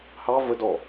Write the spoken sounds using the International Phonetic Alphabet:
h ɑ v ə d ɔ

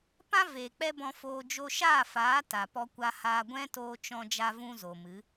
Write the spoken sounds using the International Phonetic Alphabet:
p ã˦ v eː˨ k͡p ɛ˦ b ɔ̃˧ f oː˧ d͡ʒ o˧ ʃ aː˦˨ f aː˨˦ t a˨ p ɔ˧ kʷ a˧ h aː˧ ɡʷ ɛ̃˦ t oː˧ t͡ʃ ɔ̃˧ d͡ʒ a˦ v ũ˦ z o˨ m ɨ˨˦

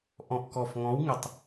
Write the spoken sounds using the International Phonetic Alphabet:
ʔ ɔ̃˨˩ ʔ k ɔ˨˩ f ŋ ɔ̃˨˦ w ŋ ɪ˨˩ tˤ

